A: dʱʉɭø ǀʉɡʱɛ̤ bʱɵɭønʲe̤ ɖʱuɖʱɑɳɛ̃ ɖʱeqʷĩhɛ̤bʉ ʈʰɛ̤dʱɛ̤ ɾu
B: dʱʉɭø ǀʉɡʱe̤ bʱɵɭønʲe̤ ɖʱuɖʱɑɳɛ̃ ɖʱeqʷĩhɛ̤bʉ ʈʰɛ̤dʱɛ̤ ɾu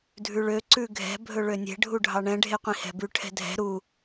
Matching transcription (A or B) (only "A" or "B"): A